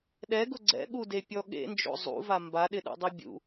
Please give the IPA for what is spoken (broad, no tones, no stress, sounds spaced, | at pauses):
ɗ ɛ ɡ ʊ ɡ͡ǀ ɛ̰ ɠ u d e pʲ ɔ ɠ ḛ n d͡ʒ o̰ zˤ ṵ v a m b a ɗ ɪ ɗ ṵ dˤ i bʲ ṵ